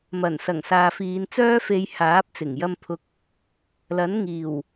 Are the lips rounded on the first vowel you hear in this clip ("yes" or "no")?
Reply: no